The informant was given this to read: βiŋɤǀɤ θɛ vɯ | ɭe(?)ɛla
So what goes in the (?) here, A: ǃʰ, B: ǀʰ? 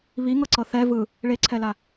B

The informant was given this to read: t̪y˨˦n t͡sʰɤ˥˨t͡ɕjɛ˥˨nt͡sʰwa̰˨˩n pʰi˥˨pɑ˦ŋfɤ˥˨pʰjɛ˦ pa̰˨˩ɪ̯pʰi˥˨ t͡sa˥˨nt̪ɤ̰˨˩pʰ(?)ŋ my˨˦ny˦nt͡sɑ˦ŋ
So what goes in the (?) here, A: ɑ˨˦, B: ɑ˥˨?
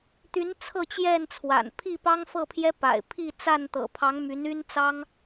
A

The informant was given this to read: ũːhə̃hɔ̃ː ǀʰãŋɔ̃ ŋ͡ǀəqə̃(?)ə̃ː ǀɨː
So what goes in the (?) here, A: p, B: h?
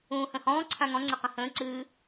B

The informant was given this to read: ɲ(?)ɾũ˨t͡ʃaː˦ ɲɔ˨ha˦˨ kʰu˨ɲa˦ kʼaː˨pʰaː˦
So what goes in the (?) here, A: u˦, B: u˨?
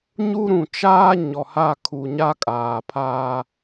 A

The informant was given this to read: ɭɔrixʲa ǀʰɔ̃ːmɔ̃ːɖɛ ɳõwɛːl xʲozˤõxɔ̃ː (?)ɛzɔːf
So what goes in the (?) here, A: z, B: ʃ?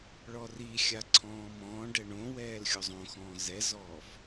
A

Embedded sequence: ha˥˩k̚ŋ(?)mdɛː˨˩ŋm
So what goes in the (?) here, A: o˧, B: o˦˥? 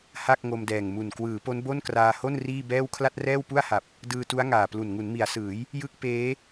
A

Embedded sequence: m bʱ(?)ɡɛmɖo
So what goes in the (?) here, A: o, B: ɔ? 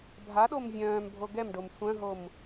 A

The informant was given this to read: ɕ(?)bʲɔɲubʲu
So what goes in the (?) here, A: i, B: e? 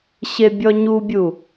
B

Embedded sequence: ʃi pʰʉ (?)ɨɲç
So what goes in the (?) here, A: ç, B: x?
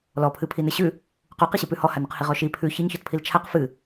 A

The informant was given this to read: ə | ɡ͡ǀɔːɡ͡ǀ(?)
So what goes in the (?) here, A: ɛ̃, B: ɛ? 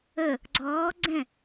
A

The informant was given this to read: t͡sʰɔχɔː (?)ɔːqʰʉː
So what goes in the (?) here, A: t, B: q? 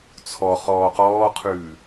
B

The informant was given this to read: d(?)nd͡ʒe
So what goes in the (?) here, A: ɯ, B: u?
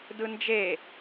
A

